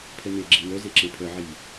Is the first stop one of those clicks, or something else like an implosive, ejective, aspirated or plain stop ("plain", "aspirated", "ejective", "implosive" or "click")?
aspirated